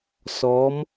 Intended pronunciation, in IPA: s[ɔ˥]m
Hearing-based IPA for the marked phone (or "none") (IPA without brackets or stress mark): ɔ˩˧